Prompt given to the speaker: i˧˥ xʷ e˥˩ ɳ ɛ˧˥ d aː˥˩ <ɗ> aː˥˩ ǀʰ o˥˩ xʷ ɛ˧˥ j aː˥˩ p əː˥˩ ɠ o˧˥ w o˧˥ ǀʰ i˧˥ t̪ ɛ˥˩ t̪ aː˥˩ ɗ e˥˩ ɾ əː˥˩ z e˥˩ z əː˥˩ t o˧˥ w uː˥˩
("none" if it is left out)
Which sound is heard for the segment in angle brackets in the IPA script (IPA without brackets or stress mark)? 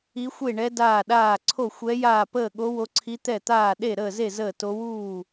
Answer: ɗ